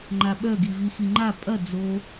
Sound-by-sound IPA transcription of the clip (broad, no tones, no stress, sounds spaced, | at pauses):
ŋ͡ǃ a ɓ œ ɡ i v i x i ŋ͡ǃ a pʼ ɐ d͡z o